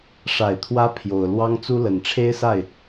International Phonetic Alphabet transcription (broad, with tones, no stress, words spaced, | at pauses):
ʂa˨˩ɪ̯t̪ʰwä˧˥ pʰjo˨˩ʊ̯ lwɑ˥ŋt͡su˥ lə˨˩nʈ͡ʂʰe˥ɪ̯sa˥˩ɪ̯